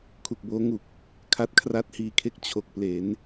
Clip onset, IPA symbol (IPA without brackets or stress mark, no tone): kʰ